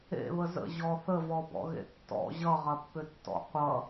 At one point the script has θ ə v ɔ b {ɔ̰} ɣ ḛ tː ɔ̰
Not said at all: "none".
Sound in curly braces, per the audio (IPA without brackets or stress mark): ɔ̰